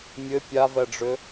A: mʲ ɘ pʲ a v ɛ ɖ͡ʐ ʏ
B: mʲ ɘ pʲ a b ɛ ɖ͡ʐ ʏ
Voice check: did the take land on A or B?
A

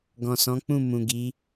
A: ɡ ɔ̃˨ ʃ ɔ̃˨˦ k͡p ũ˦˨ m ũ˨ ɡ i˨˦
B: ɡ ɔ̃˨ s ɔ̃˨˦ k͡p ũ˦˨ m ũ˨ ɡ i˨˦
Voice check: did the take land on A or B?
B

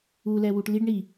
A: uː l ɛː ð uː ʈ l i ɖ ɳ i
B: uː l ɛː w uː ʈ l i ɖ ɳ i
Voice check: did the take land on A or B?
B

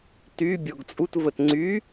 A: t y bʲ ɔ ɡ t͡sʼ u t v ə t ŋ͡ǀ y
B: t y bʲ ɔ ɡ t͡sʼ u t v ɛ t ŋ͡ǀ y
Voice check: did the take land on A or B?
A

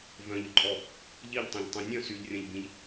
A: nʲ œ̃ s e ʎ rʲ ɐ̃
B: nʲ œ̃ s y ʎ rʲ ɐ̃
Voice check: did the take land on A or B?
B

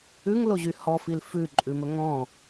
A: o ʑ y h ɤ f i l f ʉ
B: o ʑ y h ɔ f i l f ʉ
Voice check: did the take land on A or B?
B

